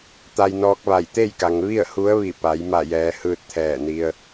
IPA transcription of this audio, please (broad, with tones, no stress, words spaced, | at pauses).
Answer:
t̪a˧jnɔː˧˥k̚ʋa˧˩j t̪e˥˨jka˩ŋ ʋi˥˨ə̯ hu˧˥ə̯ ʋi˧˩pa˩˧j ma˧˩jɛː˩ hɯː˧t̚t̪ʰɛː˧˩ni˧ə̯